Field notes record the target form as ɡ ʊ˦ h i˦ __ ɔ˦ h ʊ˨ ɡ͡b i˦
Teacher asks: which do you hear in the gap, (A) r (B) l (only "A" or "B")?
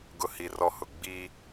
A